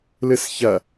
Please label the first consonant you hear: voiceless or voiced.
voiced